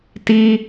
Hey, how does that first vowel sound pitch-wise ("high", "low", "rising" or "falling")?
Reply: high